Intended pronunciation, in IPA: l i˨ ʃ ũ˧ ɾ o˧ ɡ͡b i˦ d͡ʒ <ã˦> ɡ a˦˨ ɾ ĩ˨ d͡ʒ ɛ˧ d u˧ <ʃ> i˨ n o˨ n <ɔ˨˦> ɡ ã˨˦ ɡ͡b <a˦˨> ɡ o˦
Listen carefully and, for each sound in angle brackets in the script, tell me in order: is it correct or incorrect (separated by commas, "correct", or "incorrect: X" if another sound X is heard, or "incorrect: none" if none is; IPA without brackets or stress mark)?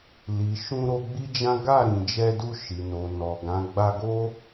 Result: correct, correct, incorrect: ɔ˨, incorrect: a˧